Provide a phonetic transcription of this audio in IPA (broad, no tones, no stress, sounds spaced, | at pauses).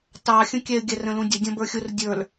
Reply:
t ɑ xʲ ə̃ kʲ ɛ ɪ̯ ɡʲ æ r ə̃ l ũ dʲ ə dʲ ɔ̃ b ə˞ xʲ ʊ r dʲ ə˞ l